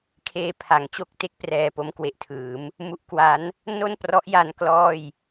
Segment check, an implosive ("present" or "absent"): absent